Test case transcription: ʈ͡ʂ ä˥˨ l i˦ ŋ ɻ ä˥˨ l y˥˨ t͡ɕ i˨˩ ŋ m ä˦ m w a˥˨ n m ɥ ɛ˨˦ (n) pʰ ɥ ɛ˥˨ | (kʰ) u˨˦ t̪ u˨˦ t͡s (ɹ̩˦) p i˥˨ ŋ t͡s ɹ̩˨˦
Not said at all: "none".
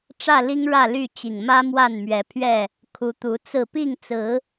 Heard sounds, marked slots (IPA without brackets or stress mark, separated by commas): none, kʰ, ɹ̩˥˨